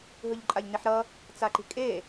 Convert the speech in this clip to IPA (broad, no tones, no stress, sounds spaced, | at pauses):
ɦ ɯ ʎ ǃʼ a ʎ n i ħ ɾ ʌ | t͡s a ǃ i̤ kʼ e